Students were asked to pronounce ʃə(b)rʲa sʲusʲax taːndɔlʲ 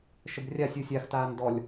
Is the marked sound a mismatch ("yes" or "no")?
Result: no